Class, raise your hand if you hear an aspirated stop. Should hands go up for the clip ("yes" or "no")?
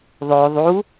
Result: no